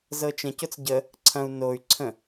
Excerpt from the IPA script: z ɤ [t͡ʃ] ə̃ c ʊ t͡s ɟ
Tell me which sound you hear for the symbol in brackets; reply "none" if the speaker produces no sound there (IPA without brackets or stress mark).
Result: t͡ʃ